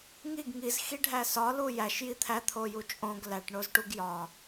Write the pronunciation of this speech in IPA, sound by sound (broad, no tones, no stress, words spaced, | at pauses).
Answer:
ŋiɡ ŋizxiɖʱæ sɒlu jæʃji t̪ʰæt̪ʰoju t͡ʃʼõɡ læʈɳozʈuɡ jɒ